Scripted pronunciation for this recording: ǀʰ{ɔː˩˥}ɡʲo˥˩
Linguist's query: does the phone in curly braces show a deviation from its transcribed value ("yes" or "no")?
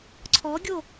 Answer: yes